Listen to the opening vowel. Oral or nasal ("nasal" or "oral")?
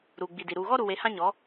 oral